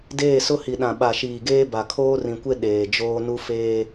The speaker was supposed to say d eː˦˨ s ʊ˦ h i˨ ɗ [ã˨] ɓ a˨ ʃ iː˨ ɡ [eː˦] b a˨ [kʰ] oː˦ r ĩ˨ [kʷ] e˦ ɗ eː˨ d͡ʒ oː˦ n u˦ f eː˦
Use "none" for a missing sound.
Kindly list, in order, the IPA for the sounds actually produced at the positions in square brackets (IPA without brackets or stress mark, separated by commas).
ã˨, eː˦, kʰ, kʷ